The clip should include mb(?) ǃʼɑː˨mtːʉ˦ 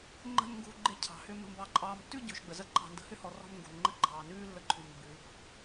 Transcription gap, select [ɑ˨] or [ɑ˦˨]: ɑ˨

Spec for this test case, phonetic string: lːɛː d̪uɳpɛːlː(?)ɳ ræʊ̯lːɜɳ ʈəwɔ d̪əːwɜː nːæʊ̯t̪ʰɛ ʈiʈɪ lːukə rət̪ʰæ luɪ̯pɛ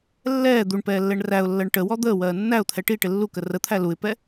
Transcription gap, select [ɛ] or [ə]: ɛ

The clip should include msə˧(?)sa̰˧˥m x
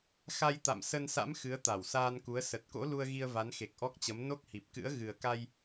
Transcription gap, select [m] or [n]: n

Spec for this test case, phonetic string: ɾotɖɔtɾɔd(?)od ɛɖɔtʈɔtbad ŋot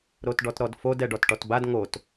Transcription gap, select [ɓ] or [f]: f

